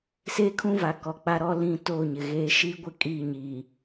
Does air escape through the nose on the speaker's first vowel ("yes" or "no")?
no